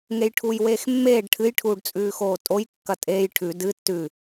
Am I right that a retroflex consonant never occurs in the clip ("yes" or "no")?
no